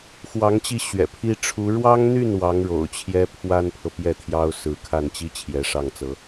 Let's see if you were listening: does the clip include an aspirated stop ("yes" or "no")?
yes